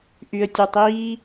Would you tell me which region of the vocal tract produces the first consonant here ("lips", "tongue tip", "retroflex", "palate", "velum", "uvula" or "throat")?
throat